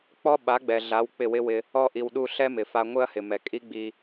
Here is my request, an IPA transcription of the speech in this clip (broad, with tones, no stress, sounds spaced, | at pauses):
k͡p ɔ˦ ɓ a˨˦ ɡ͡b ɛ˨ ɮ a˨˦ w k͡p ɪ˦˨ w ɪ˦ w ɪ˧ | ɔ˧ ʔ i˨ w ɗ u˧ ɬ ɛ˦ m ɪ˨ f a˧ ŋʷ ɪ˦ ɐ̯ h ɪ˨ m ɛ˨ kʼ i˦ ɡ͡b i˧